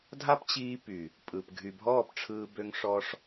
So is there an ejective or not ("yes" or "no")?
yes